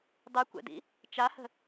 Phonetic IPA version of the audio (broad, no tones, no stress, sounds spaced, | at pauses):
dˤ y kʷ ɛ̰ d ḭ | t͡ʃ a h ə̤